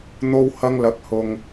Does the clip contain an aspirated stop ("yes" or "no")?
no